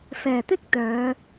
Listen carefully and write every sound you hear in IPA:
f ɛː˨˩ t̪ ɪ˥ k̚ t̪ œː˨˧

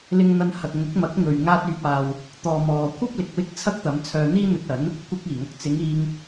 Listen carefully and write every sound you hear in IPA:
l ɪ˧ ŋ n̪ ɐ˧ n h ɐ˨ k̚ ŋ ʊ˨˥ k̚ m ɐ˨˥ k̚ ŋ ɵ˨ ɥ ŋ aː˧ t̚ yː˨ p̚ aː˨ w | t̪ ɔː˨ m ɔː˨ kʷʰ ɐ˥ p̚ l ɪ˨ k̚ w ɪ˥ k̚ t͡sʰ ɐ˥ k̚ t̪ ɐ˨˧ m t͡sʰ œː˧ n̪ iː˥ n̪ ɵ˧ t̚ ɐ˨˥ n | kʷ ɐ˧ k̚ iː˨˩ ŋ ɐ˨ k̚ t͡s ɪ˨˧ ŋ iː˧ ŋ

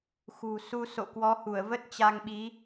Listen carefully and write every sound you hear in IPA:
x ṳ˨˩ s u˧ s o̰˧˨ k w ɔ˨˦ h u˧˩ ə̯ v ə˦˥ t̚ t͡ɕ a˧ ŋ ɓ i˨˦

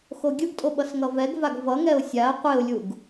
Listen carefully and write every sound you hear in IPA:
x o ɡʲ ɯ ɡ tʼ o ɓ ʌ s ŋ ʌ v ɛ ɡ v a ɡ v ʌ ŋ ɛ ʊ̯ sʲ a ə̯ qʷ e ʊ̯ lʲ u ɡ

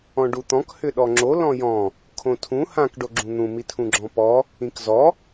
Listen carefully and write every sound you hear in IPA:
ɔ̃ ɖ u t̪ ɔ̃ k h ʏ ɗ ɔ ŋ͡ǁ o l ɔ̃ j ɔ̃ | kʰ õ tʰ ũ h ã k ɖ o ɡ͡ǁ ũ n̪ ũ m i tʰ ũ ɡ͡ǁ ɔ̃ p ɔ | ĩ k z ɔ

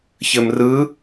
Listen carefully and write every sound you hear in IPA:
ç ɘ m r ɯ

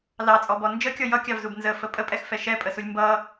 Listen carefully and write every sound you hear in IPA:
l ɑ t͡sʼ ɔ b ɔ n d͡ʒ ə kʲ ɔ j ʌ kʲ ɑ v z u b n z ə f ə pʼ ə pʼ ɛ x f ɛ ʃ ɛ pʼ ə s u lʲ m b ʌ

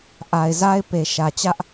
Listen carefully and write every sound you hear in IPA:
ʔ a˨ ɪ̯ z a˦ ɪ̯ p e˨ ʃ ä˨ t͡ɕ ä˦ ʔ

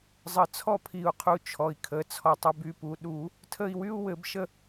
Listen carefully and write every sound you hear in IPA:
zˤ ə˨˩˦ t͡sʰ ɔ˥˨ pʰ i˨˩˦ u̯ qʰ u˨˩˦ t͡ʃʰ ɔ˩ i̯ kʰ ə˩˧˩ t͡sʰ ɔ˩ tˤ ə˩˧˩ b y˩˧˩ p u˩ ɗ u˨˩˦ | tʰ ə˥˨ i̯ w y˥ u̯ w ɘ˨˩˦ b ʃ ə˥˨

